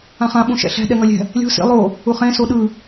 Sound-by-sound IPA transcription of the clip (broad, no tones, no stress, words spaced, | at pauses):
ãχã ɓũʃɛ̰ɬɛ̤ ɗɛŋʌlʲɛ̤ | lʲo̤ sḭ lˠo | uχẽ soɗɯ